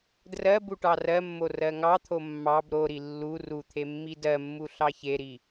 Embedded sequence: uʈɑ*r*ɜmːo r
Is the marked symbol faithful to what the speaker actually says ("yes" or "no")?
yes